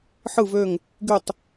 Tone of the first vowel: falling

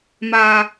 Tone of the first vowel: low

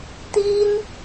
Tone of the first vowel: high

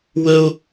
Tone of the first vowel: high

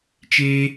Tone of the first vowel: high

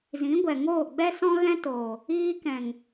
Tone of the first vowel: rising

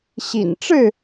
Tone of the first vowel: low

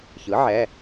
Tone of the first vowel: rising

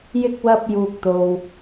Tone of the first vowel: high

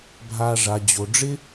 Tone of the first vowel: low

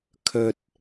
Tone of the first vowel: low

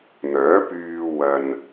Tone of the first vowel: rising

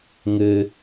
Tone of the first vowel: high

